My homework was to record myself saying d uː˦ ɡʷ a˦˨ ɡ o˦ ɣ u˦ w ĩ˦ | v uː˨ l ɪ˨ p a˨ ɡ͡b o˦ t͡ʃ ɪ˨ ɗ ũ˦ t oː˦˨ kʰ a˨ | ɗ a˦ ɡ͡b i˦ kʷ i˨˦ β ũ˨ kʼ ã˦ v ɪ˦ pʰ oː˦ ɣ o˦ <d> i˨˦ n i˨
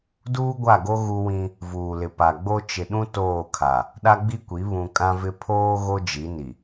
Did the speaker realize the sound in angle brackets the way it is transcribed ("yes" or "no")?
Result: no